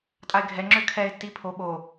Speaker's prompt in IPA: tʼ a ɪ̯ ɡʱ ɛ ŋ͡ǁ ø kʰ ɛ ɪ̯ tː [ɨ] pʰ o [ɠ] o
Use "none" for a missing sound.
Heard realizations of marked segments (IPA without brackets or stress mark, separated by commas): i, ɓ